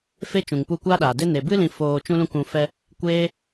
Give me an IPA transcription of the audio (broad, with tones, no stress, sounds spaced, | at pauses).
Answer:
f e˦ t͡ʃ ũ˨ ŋ p u˧ kʷ aː˦ ɗ aː˨ d e˦ n e˨ b ɨ˦ l ĩ˧ f oː˨ t͡ʃ ũ˧ l ũ˧ k ũ˨ f ɛ˧ | kʷ eː˦